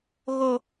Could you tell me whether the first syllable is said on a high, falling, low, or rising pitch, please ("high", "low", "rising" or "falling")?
high